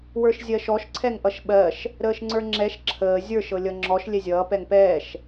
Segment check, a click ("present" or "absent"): present